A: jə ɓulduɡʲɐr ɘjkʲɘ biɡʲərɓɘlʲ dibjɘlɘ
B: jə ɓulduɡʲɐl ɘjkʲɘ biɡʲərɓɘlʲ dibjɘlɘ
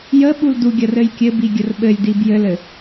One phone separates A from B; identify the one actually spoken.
A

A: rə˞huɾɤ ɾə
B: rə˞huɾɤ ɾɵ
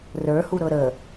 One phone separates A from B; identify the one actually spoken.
A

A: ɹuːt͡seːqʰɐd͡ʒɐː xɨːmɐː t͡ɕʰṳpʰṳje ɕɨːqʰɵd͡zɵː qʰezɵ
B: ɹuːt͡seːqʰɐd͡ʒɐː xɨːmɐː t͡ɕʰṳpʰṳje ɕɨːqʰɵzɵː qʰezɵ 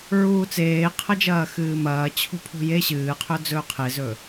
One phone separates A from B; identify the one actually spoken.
A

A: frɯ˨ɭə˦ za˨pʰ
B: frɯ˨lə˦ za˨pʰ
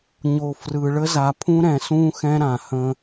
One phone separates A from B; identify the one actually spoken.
A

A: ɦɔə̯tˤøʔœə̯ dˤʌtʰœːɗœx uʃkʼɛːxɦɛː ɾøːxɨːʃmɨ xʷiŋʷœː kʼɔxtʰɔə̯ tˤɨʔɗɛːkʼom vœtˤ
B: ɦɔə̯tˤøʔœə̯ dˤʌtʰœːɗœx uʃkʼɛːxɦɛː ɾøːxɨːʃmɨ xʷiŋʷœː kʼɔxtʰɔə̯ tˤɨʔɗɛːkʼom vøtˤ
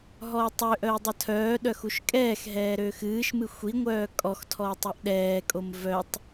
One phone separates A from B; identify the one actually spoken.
A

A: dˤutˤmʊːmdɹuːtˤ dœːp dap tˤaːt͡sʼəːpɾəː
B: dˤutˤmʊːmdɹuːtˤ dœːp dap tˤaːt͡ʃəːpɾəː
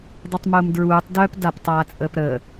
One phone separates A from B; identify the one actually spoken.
A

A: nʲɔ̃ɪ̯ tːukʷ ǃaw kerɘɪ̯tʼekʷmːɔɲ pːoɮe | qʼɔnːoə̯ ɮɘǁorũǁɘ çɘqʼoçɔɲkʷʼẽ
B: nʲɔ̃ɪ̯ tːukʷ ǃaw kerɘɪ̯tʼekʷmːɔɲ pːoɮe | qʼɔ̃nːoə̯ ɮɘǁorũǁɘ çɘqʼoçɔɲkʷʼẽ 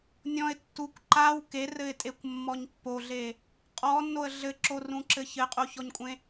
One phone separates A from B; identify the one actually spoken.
A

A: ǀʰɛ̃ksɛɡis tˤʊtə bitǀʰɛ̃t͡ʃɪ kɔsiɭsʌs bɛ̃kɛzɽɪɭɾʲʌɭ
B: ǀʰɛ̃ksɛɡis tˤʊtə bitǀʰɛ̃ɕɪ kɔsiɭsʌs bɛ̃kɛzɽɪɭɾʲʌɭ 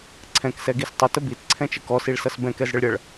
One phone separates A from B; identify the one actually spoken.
A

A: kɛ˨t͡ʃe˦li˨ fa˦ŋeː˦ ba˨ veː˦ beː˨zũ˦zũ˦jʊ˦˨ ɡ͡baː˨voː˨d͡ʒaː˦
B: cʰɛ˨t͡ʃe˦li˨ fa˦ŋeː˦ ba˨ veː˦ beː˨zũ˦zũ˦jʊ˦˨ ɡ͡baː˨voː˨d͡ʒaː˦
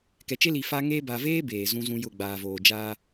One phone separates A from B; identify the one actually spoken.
A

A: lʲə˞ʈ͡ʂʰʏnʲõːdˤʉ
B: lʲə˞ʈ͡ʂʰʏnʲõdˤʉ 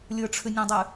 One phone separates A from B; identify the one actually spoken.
B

